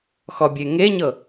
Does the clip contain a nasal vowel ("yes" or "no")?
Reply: no